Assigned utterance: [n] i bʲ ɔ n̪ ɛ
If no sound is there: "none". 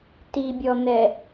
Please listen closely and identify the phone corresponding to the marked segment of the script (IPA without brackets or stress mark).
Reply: t